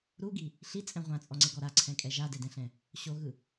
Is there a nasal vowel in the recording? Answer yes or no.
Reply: yes